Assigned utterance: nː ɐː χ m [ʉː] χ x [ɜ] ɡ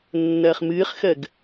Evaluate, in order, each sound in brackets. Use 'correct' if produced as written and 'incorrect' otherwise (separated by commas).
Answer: incorrect, correct